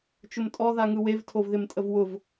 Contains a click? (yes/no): no